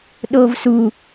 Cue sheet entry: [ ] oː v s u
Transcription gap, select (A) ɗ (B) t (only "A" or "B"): A